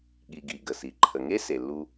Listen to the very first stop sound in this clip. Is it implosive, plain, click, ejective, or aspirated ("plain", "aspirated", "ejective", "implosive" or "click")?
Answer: implosive